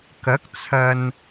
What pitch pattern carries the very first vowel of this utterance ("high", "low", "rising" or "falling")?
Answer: rising